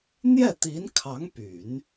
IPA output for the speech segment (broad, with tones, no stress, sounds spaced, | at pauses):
n̪ j ɛ˥˩ t̪ i˧˥ n kʰ ɑ˧˥ ŋ p y˨˩˦ n